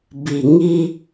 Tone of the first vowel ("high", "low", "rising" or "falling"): low